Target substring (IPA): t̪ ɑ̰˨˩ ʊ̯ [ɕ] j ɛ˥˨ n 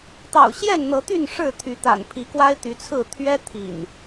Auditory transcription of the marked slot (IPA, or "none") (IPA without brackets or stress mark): ɕ